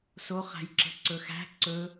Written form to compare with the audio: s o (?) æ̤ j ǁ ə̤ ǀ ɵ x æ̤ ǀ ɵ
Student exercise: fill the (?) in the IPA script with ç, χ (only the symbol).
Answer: χ